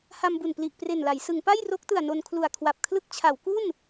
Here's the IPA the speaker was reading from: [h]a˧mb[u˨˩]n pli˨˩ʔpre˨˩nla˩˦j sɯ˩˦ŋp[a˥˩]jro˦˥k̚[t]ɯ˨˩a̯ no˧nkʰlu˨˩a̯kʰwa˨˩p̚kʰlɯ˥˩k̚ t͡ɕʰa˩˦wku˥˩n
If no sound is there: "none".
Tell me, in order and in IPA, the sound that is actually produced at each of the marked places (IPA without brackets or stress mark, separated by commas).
h, u˨˩, a˥˩, t